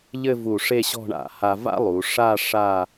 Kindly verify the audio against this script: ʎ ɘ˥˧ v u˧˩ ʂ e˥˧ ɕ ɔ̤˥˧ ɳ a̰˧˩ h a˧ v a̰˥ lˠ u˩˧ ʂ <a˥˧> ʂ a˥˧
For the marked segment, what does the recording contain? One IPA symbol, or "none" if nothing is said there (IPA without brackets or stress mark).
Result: a˥˧